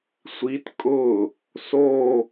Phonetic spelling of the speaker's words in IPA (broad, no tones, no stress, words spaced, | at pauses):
sʷit kʼʊ | so